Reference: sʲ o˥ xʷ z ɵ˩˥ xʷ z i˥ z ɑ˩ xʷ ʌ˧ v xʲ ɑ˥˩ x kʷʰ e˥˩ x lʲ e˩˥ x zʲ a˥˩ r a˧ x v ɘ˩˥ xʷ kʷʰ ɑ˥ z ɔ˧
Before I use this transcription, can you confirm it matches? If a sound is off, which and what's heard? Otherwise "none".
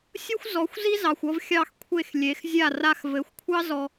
ɵ˩˥ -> ɔ˩˥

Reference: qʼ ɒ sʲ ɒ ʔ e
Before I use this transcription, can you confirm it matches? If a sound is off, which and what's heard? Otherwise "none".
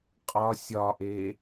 none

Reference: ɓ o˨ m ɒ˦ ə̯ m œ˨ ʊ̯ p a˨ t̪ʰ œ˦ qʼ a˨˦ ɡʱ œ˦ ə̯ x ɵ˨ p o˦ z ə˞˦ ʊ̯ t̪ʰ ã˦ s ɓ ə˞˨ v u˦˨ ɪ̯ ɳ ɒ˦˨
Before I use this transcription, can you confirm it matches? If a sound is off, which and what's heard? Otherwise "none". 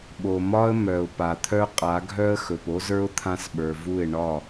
none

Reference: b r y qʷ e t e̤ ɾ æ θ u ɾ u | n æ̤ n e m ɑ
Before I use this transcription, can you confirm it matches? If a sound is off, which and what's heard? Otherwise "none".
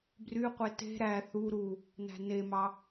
none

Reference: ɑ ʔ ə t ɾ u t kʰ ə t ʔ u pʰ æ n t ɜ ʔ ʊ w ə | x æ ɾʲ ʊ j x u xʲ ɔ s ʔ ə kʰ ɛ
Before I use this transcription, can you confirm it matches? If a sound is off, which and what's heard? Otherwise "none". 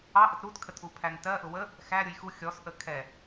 none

